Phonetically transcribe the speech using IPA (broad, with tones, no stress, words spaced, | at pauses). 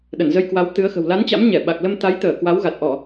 ɗə˧˩nzə˧jkwa˨˦w t̪ɨ˨˦ə̯xə̤˨˩w la˨˦nt͡ɕa̰˧˥m ɲɛ˧˩ɓa˨˩k̚lə˧m t̪a˨˦jt̪əː˧˩ kwa˨˦wɣa˨˩t̚ʔɔ˧˩˨